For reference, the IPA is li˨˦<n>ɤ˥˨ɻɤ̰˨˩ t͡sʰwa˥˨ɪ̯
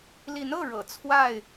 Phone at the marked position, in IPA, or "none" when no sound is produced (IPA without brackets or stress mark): n